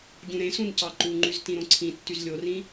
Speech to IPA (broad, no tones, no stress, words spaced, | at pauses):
ɟũɾẽsũn cɑǃuŋ͡ǃyz tĩɾõǀʰĩtːyz lʲorĩ